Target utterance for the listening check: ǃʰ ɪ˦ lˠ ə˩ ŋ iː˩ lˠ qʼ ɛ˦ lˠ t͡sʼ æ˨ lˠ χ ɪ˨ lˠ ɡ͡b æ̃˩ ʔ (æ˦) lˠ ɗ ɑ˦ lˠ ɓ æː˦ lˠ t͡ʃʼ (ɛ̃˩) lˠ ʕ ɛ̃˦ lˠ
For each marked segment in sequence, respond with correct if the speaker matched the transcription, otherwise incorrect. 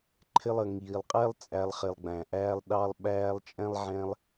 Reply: incorrect, incorrect

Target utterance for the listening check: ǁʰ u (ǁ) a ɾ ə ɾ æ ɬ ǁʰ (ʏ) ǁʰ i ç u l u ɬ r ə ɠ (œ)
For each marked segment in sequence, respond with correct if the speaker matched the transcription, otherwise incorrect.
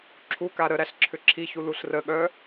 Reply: incorrect, correct, correct

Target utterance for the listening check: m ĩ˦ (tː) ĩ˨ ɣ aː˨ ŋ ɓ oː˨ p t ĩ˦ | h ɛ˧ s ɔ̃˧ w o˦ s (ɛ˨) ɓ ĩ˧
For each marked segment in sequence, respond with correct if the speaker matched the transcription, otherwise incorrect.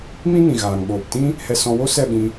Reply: incorrect, incorrect

